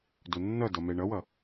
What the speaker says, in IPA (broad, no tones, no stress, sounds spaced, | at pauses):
d o nː ʌ d ʌ m ɛ ɳ ʌ w ʌ